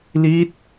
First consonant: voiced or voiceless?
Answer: voiced